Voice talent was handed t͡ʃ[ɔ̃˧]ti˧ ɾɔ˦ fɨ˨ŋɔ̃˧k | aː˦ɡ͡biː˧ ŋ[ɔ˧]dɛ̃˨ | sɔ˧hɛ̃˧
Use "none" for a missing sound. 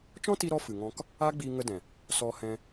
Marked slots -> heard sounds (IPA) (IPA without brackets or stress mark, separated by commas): ɔ̃˦, ə˧